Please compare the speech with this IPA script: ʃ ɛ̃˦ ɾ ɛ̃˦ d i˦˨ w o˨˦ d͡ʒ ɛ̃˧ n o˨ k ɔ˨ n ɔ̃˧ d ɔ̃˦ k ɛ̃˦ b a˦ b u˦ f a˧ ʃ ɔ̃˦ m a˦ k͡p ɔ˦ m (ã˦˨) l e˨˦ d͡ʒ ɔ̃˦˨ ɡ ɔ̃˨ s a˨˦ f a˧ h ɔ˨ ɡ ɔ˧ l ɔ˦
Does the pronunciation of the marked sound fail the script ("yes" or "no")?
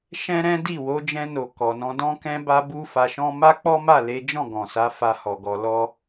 yes